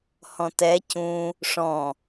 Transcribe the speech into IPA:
h ɔ̃ t ɛ c ũ | ʂ ɔ̃

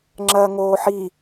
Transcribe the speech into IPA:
ŋ͡ǁ ɐː ŋ oː ħ i

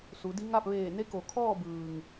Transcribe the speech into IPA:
s u˩˧ d i˧˥ ŋ a˥˨ p̚ ʋ eː˧˩ n e˧˥ k o˩ kʰ ɔː˥˨ b ɯː˩ ŋ

